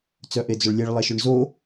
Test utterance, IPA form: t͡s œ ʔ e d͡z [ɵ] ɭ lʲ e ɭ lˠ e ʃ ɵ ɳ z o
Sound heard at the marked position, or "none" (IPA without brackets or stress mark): ɵ